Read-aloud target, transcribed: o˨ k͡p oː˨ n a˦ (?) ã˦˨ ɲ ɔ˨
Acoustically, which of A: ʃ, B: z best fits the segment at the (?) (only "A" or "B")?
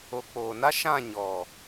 A